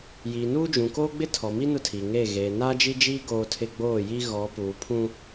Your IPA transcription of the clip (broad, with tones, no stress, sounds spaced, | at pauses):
j iː˨ n uː˦ d͡ʒ ũ˨ k oː˦ ɡ͡b ɪ˦ tʰ ɔ˨ m i˦ n ʊ˦ tʰ i˨ ŋ eː˦˨ ɣ eː˨ n aː˦ d͡ʒ i˦ d͡ʒ iː˦ ɡ oː˦ tʰ ɪ˦ ɡ͡b oː˦˨ j i˦ ɣ ɔ˨˦ p uː˨ pʰ ũ˦